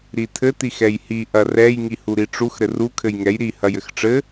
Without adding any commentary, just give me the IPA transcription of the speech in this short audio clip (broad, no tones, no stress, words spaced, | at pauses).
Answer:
ɾitʰɘ tixɛjhi ʔɐrɛj ŋihuɾiʈ͡ʂux ɾɘru kʰɘjŋɛj ɾi hɐjɘxʈ͡ʂɘ